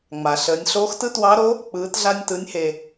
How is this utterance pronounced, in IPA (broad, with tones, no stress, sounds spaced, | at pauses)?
ŋ͡m a˩ ɬ əː˩˧ nʲ ɬ oː˧˥ x t ɯ˥ t w ɑ˧˥ ɾ o˧˥ | k͡p ɯː˩˧ t ɮ a˧ nʲ t ɯ˩˧ nʲ h e˩